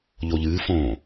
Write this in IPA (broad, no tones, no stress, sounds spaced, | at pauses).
ʎ o ʎ ɨː f õː